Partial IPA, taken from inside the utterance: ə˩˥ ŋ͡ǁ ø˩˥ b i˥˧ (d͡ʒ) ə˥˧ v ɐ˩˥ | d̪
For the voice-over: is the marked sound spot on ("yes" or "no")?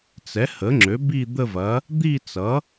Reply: no